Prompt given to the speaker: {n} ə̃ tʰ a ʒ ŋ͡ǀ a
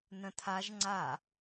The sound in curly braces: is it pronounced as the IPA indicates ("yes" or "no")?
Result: yes